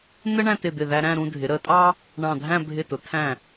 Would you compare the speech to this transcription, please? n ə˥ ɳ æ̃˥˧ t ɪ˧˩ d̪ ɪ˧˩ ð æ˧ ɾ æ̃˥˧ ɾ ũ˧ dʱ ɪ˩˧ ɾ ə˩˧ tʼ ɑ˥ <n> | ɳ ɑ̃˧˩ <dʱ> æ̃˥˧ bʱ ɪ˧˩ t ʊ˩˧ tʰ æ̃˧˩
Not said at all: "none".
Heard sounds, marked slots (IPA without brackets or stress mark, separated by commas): none, dʱ